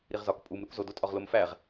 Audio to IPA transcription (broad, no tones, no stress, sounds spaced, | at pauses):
ɾ i ʁ z ɒ k pʼ u m ɾ u k z o d o tʼ ɒ ʁ l o m f æ ʁ